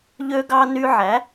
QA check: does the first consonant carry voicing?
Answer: yes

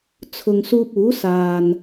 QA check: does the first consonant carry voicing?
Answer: no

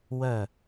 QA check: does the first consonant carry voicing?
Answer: yes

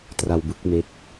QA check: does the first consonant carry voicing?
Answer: no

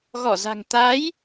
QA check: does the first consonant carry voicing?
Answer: yes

